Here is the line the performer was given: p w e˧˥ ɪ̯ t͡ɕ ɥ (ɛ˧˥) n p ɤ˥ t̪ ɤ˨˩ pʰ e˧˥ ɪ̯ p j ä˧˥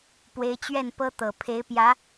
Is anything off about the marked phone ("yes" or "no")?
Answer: yes